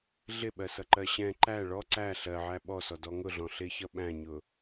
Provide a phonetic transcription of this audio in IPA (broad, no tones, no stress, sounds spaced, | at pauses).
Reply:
ɮ ɪ ɓ ɜ s ʌ ǃ ɜ ɕ ɛ̃ ǃ æ ɭ ɔ ǀ æ ɬ ɜ ʕ æ ɓ ɔ s ɔ d ɔ ŋ ʊ ɮ ɔ̃ ɬ ɪ ç ʌ ɓ æ̃ ɲ ʊ